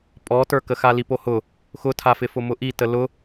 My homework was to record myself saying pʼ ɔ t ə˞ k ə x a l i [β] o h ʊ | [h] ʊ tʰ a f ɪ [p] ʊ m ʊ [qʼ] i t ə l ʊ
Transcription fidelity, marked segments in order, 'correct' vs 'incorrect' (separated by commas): incorrect, incorrect, incorrect, incorrect